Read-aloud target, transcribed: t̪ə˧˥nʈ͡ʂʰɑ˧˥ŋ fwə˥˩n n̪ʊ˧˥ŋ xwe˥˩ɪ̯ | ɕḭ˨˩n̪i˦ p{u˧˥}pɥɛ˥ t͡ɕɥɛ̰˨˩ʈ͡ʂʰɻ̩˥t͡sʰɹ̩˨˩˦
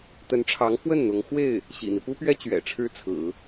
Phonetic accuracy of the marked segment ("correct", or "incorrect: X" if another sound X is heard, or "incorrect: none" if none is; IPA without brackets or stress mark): incorrect: u˥